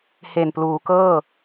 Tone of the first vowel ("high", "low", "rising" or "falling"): low